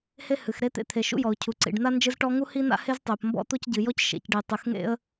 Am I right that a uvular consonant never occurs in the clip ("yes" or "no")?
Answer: yes